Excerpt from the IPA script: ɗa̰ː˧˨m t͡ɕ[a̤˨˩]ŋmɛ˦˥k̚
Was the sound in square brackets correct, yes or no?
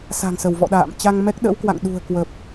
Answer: no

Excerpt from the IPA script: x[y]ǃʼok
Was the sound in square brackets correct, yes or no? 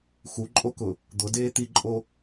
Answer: no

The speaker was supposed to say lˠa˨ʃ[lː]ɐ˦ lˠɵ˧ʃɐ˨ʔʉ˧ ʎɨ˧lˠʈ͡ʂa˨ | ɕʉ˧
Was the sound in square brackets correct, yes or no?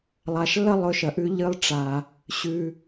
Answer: yes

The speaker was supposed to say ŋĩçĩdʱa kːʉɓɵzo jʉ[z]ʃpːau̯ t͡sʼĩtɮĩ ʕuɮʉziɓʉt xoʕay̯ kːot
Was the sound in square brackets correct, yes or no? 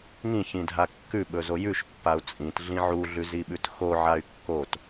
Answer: no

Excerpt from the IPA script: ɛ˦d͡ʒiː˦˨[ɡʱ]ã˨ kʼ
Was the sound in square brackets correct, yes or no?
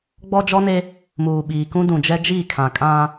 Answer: no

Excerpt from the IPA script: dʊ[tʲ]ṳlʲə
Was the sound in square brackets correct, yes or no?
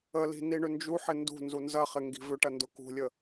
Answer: no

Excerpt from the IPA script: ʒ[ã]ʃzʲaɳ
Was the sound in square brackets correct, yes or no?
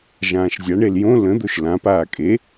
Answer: no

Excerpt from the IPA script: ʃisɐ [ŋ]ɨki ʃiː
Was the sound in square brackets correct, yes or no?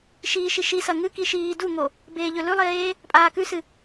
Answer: yes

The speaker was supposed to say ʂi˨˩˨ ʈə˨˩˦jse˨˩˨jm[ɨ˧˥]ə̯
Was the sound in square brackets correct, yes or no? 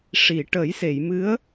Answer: yes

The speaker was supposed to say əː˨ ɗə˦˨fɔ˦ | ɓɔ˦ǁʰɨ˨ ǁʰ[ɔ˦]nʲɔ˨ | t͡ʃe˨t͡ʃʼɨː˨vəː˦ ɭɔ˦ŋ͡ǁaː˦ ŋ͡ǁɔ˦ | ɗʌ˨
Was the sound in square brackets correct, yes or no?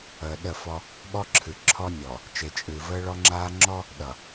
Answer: yes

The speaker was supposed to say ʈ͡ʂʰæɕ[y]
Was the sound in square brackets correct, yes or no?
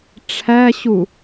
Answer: no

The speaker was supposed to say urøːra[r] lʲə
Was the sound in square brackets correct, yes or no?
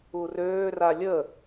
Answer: no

